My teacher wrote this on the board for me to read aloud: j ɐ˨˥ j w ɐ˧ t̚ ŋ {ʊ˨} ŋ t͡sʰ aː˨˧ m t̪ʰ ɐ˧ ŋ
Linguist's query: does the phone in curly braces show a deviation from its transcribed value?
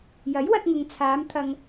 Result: no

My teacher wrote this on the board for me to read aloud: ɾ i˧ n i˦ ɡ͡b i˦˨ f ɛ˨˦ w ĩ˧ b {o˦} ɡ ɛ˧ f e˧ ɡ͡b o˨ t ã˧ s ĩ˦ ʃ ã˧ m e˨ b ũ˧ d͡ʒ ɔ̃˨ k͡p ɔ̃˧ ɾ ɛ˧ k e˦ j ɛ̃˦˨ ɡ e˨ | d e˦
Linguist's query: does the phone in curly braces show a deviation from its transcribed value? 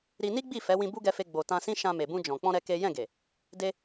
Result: yes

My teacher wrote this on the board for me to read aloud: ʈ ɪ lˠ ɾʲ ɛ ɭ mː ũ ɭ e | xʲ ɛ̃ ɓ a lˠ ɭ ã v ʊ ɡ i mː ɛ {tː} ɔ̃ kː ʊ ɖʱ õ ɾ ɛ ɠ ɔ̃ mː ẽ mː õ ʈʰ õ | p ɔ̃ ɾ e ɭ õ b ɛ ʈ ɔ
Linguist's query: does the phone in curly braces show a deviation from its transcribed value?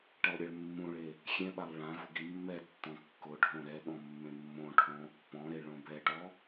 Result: no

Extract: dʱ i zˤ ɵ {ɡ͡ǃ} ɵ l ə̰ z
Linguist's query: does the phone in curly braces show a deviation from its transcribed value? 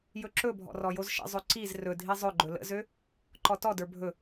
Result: no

